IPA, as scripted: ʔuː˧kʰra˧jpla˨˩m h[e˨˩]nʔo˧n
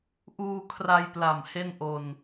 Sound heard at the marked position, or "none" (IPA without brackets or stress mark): e˥˩